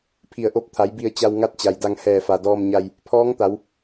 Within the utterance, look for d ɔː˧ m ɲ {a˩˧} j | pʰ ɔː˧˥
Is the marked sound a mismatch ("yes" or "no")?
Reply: yes